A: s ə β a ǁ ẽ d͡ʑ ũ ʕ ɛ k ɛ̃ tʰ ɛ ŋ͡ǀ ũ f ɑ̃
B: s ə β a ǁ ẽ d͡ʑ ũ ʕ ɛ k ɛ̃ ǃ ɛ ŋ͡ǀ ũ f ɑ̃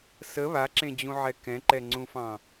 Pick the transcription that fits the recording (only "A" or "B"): B